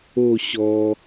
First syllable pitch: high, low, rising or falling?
falling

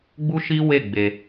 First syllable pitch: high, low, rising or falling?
high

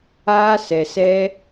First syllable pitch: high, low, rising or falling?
high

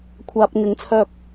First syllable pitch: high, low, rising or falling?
low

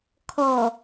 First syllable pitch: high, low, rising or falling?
low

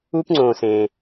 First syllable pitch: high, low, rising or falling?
high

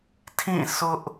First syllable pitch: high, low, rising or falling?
falling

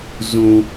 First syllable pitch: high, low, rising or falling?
low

